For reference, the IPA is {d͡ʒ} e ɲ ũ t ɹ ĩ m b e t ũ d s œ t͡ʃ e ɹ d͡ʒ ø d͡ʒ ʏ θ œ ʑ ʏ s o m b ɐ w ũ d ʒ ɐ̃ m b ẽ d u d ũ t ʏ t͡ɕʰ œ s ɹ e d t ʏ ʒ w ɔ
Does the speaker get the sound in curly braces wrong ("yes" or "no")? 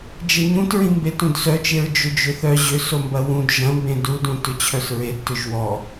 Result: no